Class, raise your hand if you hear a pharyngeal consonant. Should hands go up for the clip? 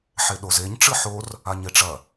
yes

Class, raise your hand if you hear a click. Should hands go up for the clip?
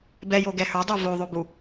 no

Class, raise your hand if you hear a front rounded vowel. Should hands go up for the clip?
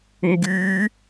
yes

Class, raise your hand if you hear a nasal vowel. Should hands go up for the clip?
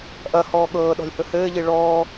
no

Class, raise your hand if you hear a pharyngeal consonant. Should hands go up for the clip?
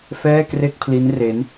no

